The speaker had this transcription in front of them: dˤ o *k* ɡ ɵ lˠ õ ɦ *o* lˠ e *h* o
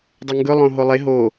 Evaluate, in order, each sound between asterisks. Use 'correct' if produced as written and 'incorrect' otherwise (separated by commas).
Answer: incorrect, correct, incorrect